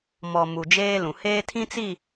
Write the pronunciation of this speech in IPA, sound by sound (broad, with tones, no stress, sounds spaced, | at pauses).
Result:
m ɔ˨ m u˨ d͡ʒ eː˦ l ũ˨ h eː˦ tʰ ĩ˦ t͡s i˦˨